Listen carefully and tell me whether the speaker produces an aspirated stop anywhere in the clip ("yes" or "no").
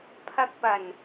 yes